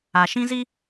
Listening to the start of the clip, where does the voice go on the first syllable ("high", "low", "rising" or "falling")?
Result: low